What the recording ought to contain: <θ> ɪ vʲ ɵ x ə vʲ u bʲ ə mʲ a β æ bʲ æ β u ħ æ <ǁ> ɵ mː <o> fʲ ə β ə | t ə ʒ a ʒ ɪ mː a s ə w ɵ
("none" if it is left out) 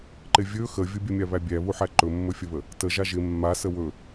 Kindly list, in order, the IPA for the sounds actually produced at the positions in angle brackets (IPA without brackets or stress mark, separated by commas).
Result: ǃ, ǃ, ɵ